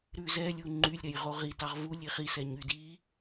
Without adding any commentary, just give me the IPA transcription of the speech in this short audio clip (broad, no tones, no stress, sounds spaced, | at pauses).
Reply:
ɾ ʉ z ɛ lʲ u ŋ͡ǃ y lʲ ɾ ɛ j ʁ o ʁ i t ɑ ʁ v u lʲ i χ i s ɛ ɲ y d i